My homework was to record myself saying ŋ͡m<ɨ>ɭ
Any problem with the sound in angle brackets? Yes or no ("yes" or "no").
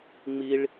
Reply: yes